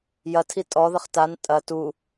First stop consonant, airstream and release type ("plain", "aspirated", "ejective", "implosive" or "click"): aspirated